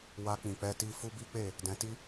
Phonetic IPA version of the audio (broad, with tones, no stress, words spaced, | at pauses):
wa˧k͡pĩ˨ k͡pɛ˧ti˧ fu˦bi˦k͡pe˦˨ | dɛ̃˧ti˦